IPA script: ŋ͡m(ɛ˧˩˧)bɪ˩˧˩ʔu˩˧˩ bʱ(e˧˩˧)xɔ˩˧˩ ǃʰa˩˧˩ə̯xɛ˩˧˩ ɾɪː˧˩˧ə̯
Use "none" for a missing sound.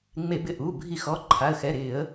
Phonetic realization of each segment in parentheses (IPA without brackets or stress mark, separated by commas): e˧˩˧, i˧˩˧